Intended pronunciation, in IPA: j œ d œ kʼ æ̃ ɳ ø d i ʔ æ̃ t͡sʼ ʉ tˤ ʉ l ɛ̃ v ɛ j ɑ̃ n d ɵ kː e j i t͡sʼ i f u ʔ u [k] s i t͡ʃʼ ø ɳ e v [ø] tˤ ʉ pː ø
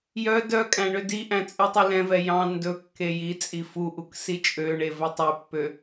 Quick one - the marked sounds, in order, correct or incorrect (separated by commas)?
correct, incorrect